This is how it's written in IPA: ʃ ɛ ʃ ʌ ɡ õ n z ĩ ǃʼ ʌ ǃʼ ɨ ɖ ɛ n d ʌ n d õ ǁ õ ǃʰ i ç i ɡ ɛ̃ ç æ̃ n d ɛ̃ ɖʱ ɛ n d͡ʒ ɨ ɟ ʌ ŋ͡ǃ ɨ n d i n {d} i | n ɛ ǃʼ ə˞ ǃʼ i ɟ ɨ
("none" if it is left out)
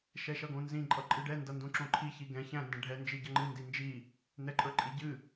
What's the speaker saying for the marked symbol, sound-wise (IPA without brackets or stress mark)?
d͡ʒ